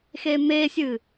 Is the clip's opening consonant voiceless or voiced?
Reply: voiceless